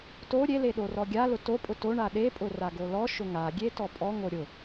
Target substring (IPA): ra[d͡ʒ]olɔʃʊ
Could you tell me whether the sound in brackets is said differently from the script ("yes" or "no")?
yes